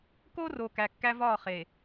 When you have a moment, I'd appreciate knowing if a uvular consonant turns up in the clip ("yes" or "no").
yes